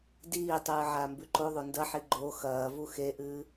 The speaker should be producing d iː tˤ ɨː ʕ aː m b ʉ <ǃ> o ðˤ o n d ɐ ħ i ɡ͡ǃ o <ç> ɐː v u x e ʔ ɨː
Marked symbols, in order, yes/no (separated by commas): yes, no